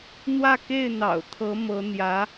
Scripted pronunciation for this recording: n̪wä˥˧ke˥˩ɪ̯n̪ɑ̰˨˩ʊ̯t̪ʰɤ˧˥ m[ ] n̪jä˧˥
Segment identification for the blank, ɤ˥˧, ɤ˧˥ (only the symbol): ɤ˧˥